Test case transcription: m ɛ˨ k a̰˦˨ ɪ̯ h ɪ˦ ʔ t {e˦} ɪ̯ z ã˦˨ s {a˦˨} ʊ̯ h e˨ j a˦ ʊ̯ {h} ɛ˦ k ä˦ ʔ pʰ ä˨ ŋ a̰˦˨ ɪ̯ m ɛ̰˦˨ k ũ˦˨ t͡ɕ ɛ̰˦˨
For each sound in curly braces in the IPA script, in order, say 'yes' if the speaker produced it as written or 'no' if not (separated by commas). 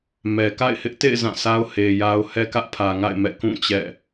no, no, yes